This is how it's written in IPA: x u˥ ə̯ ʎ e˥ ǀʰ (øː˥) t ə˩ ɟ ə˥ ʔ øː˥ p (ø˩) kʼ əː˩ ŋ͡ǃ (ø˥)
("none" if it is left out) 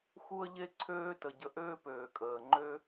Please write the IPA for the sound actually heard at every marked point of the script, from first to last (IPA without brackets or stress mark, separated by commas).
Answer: øː˥, øː˩, ø˥